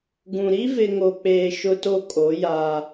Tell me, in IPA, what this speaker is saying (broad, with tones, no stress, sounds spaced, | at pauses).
ɡ ũ˨ ɾ i˦ v ɪ˨ ŋ o˨ k͡p eː˨ ʃ ʊ˦ t o˦ kʼ o˨˦ j a˦